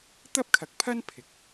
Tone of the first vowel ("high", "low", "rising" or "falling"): high